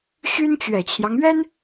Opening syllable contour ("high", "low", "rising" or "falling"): high